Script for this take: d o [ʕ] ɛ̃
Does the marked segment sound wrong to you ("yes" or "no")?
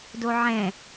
no